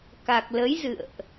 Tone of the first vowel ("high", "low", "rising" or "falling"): low